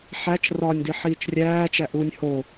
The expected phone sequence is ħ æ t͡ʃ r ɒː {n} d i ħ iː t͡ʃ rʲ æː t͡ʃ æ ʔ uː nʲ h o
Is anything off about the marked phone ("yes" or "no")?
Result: yes